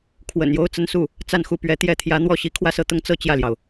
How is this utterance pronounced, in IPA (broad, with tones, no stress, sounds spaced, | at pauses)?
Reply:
kʰ w ə̰˨˩ n j o˥ ʊ̯ t͡s ə˧˥ n s u˥˩ | t͡s a˥˧ n x u˥˩ p ɥ ɛ˧˥ t̪ j ɛ˥˩ t̪ʰ j ä˧˥ n̪ w ɔ˥˩ ɕ i˧˥ kʰ w ä˥˧ s ɤ˥˩ t̪ ʊ˥ ŋ t͡s ɤ˥˧ t͡ɕ j ä˥˩ l j ɑ˩ ʊ̯